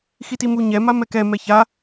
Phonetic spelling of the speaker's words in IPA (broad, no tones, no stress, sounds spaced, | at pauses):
x i t i m u ɲ ɛ m a m ɛ k ɛ m ɛ ç a